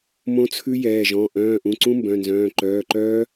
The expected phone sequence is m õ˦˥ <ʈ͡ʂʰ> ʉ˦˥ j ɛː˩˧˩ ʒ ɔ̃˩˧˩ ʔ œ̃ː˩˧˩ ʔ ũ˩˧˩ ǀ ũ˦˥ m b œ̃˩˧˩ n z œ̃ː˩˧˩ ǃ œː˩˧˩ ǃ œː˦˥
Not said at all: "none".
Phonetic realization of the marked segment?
t͡sʰ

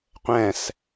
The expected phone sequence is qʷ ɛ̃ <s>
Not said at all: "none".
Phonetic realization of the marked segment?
s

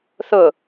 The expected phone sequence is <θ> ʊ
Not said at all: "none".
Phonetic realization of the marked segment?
θ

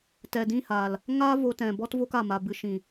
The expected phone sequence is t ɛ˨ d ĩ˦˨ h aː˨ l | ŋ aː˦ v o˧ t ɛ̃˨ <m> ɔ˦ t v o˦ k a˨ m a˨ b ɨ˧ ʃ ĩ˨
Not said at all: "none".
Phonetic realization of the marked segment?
b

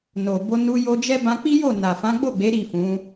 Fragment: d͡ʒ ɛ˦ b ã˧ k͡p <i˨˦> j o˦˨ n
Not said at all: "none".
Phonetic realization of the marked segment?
i˦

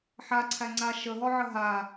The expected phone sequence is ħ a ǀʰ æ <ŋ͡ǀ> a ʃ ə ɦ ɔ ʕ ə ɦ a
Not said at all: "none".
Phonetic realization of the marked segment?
ŋ͡ǀ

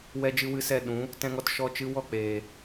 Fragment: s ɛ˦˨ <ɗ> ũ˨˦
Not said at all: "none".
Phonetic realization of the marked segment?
ɗ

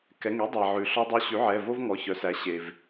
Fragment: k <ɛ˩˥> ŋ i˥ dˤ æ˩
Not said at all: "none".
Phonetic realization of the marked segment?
ɛ˩˧˩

